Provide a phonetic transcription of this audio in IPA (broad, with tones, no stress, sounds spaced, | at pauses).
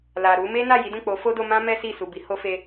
l a˨ ɾ u˨˦ m e˦ n a˦˨ j i˨˦ d ũ˦˨ k͡p o˨˦ f o˦ d o˧ m ã˦ m ɛ˦ s i˦˨ s u˨ b i˨˦ h o˦ f e˦